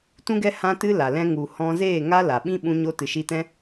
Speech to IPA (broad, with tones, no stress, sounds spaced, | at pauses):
t ũ˦ ɡ ɛ˦ h ã˦ t ɨ˦ l a˨ l ɛ̃˧ ŋ u˨ h ɔ̃˧ z eː˦˨ ŋ a˦ l a˨ ɓ ĩ˦ ɓ ũ˧ ɲ o˧ t ɨ˨ ʃ iː˧ t ɛ̃˦